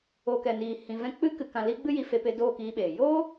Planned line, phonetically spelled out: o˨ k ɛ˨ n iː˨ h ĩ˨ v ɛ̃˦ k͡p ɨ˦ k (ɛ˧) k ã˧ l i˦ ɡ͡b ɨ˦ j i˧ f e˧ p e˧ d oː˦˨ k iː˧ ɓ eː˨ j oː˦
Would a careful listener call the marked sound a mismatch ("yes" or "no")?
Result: yes